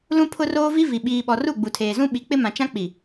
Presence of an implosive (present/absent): present